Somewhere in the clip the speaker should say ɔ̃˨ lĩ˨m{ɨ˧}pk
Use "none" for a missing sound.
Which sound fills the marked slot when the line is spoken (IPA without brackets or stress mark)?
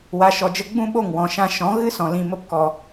ə˧